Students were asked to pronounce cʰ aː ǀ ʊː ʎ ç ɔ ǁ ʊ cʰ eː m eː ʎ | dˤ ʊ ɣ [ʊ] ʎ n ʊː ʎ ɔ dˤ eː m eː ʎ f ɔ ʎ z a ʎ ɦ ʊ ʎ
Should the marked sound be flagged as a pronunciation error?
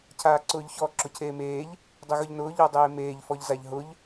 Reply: no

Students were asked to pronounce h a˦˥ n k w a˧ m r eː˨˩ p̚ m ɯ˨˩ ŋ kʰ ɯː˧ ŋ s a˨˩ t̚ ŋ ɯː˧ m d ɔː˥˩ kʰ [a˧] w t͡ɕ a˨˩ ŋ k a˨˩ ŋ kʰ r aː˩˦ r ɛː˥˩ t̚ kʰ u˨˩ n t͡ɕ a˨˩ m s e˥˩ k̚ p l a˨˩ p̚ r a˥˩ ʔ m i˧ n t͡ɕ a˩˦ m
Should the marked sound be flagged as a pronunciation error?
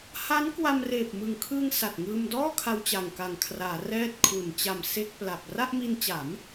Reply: no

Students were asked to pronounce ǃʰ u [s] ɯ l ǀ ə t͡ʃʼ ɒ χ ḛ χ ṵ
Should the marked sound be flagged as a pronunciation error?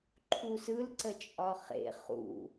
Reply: no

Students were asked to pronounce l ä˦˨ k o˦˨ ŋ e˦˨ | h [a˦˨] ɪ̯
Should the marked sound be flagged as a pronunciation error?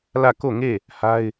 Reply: yes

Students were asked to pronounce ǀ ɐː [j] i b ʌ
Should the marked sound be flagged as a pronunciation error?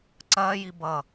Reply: no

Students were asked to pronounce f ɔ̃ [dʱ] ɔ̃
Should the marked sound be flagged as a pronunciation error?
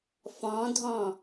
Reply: no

